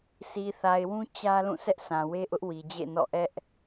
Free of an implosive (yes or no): yes